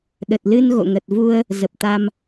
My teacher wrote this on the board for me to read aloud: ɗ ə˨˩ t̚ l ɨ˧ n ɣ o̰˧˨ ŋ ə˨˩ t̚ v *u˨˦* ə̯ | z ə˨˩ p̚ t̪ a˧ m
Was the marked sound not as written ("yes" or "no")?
yes